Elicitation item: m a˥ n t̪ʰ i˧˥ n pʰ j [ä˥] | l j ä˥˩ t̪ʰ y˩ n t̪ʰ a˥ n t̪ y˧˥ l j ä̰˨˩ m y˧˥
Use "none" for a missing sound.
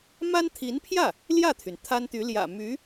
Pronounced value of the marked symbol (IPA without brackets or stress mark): ä˥˩